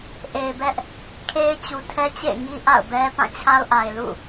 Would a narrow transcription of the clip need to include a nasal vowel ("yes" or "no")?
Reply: yes